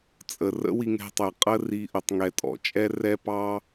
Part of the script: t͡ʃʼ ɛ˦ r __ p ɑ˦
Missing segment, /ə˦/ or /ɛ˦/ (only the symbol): ɛ˦